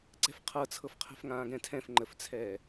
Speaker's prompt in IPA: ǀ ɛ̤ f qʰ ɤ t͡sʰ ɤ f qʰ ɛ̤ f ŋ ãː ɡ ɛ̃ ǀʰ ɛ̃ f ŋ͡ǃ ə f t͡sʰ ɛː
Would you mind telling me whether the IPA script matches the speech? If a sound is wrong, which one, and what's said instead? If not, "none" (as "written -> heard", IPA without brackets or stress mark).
ǀʰ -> tʰ